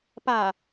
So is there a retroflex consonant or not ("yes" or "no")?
no